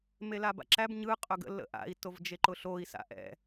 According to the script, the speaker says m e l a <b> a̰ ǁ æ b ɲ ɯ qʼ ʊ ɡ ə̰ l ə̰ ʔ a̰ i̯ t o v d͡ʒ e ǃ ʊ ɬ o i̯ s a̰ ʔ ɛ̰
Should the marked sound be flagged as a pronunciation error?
no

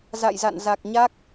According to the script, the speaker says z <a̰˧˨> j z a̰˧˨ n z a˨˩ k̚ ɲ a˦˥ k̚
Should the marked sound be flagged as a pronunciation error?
no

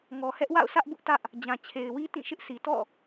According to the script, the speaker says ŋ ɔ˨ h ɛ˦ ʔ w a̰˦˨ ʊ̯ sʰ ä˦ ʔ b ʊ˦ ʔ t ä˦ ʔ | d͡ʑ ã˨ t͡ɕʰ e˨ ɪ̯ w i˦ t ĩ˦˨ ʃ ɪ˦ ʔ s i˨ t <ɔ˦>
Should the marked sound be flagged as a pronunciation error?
yes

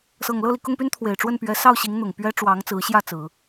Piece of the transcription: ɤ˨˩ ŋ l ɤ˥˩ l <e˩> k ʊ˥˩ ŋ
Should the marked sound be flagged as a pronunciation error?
yes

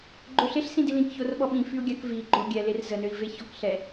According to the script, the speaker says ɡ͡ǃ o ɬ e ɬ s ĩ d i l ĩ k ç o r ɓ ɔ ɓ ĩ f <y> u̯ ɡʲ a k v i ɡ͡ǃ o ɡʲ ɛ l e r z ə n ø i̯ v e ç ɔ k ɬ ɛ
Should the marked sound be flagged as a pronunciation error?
no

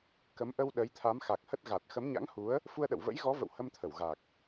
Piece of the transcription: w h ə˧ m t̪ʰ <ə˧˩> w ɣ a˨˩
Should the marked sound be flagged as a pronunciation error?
no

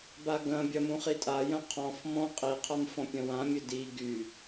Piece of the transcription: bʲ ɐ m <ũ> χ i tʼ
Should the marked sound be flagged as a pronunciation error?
no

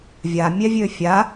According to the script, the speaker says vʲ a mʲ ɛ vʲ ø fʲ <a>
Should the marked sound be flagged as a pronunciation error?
no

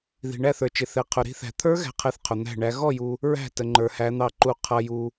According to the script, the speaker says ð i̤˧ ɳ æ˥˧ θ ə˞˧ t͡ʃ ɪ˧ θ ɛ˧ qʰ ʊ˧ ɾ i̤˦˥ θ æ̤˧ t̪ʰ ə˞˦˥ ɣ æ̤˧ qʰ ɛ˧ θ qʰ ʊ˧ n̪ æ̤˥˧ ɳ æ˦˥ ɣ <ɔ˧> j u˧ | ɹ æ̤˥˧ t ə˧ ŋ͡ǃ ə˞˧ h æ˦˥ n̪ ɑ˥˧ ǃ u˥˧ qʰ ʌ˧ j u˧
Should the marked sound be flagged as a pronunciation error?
yes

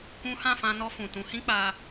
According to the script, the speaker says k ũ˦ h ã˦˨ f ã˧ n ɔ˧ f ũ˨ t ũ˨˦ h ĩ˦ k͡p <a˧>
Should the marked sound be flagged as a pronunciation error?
no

